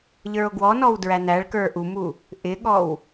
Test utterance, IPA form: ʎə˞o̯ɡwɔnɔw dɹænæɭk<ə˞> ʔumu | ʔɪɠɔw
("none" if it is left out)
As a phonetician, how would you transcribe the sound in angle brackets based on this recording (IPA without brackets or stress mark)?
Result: ə˞